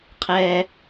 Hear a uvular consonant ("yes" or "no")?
yes